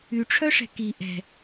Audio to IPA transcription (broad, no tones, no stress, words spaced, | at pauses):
yʈ͡ʂʰœʂɛ̤ ki ʔɛ̤